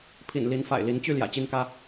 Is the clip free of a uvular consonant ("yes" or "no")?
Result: yes